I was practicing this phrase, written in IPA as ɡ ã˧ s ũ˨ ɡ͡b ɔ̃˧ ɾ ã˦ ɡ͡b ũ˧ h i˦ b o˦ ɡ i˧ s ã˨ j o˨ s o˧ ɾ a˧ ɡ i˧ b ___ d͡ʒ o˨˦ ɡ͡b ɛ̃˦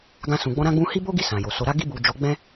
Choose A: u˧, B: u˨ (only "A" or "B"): B